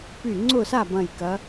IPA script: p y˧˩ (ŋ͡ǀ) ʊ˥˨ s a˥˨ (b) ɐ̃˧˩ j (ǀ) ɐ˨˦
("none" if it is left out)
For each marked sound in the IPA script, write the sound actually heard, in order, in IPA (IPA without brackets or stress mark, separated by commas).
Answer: ŋ͡ǀ, b, k